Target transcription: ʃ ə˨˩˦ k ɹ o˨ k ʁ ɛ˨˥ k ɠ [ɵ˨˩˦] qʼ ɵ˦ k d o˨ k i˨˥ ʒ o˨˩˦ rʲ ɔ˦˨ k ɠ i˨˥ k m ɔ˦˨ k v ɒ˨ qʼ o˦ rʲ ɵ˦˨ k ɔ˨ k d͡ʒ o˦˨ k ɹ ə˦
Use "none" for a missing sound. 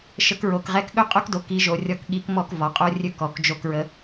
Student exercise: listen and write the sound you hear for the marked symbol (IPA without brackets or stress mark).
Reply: ɵ˦